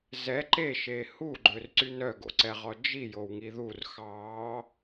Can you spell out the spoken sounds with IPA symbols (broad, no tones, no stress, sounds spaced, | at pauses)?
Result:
z ɛ ǃ e ʃ e h u ɡ͡ǃ ø r ǀ y n œ ɡ o̰ ǀ ɛ ʁ ɔ d͡ʒ i j o w ŋ i ð u r x ɑ